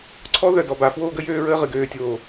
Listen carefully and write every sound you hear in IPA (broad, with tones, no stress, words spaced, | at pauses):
ǀʰɔ˦ðœ˨ dɔ˨ba˨fwoː˦ɡə˦ jøː˦ɹəː˦ ʁɨ˨ɡøː˨tʲoː˨